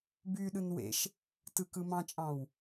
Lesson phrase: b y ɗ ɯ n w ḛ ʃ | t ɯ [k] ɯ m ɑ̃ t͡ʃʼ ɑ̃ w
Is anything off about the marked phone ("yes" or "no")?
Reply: no